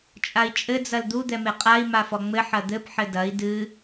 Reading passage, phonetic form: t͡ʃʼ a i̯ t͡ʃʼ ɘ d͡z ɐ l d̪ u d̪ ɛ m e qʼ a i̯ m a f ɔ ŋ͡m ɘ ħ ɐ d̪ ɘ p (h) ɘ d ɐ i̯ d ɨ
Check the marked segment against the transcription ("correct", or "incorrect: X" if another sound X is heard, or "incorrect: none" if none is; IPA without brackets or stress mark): incorrect: ħ